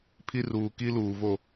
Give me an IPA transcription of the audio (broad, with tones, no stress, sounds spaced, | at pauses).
pʰ i˦ r uː˨ k i˦ l uː˨ v o˦˨